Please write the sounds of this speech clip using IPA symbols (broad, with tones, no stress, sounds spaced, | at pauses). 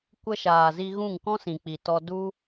kʷ ə˧ ʃ aː˨ z i˧ ɣ ũ˦˨ ŋ k ɔ̃˦ s ĩ˨ k͡p i˨ t ɔ˧ d u˦